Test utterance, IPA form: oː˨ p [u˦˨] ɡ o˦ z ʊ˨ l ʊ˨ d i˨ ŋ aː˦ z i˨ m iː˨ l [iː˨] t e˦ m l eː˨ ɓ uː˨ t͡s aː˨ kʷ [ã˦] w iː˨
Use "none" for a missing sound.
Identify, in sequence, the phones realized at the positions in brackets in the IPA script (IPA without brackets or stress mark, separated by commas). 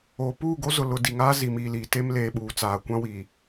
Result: uː˦˨, iː˨, ã˦